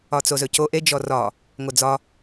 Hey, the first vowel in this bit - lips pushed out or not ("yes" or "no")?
yes